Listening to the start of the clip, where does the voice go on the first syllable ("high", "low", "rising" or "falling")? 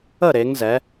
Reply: falling